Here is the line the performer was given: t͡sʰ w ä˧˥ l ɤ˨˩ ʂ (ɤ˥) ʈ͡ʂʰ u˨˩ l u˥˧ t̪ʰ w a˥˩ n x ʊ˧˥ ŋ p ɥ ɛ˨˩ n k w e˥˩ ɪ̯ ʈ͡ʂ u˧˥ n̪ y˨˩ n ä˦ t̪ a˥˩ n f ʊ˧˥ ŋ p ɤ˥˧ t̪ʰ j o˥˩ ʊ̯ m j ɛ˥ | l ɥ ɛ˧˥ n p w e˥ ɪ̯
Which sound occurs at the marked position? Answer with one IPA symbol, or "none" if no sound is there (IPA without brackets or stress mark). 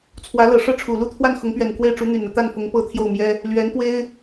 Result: ɤ˥